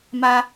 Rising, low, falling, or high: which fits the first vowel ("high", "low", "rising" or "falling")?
high